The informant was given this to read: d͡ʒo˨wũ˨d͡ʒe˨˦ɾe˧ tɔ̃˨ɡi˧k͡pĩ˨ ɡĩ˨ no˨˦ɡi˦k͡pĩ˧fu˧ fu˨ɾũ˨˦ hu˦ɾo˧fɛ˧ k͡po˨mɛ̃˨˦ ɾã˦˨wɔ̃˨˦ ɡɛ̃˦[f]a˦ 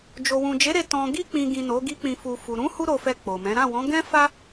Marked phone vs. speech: correct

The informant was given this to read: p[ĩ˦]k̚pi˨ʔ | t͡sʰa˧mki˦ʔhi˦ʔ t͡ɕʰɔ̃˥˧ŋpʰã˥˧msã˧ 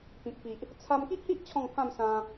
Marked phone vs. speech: incorrect: ĩ˨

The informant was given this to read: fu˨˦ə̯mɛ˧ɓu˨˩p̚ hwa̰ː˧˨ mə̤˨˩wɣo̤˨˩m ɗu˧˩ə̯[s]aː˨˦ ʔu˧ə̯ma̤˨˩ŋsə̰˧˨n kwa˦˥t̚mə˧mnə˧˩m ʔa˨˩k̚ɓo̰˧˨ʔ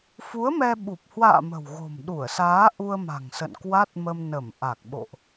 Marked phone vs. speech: correct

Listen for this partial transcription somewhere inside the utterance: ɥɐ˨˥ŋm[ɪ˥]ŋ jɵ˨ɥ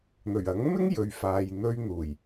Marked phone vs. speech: correct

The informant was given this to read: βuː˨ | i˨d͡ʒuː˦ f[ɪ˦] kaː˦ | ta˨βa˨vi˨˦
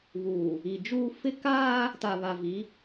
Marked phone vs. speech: correct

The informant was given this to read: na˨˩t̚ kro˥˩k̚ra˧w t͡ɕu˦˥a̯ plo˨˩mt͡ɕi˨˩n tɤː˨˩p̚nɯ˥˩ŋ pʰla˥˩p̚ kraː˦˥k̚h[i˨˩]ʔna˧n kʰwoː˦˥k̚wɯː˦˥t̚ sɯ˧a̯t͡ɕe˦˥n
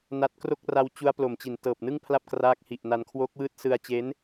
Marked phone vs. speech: correct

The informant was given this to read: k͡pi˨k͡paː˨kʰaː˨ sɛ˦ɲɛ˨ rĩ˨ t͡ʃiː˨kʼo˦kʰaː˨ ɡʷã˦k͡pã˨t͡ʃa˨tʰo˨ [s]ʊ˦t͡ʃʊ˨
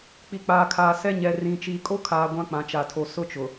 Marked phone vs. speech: correct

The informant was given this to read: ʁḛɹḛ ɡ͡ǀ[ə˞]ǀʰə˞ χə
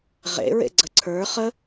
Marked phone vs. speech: incorrect: ə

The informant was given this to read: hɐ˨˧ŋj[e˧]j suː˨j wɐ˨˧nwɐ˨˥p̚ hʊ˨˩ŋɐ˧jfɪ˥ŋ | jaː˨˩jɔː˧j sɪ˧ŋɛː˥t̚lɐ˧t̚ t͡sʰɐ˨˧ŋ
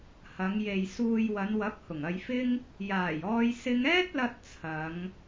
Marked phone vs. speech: incorrect: e˨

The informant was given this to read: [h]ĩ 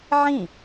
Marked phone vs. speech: incorrect: ʕ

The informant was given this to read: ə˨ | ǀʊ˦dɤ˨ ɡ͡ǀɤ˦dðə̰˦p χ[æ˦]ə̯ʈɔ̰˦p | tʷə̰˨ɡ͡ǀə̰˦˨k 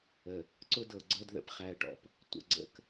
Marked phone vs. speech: correct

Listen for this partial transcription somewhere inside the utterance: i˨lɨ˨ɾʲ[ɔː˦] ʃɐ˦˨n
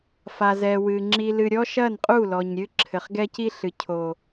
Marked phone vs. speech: incorrect: ɔ˦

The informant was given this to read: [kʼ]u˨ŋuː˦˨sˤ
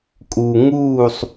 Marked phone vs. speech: correct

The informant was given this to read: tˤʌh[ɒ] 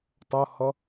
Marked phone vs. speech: incorrect: ʌ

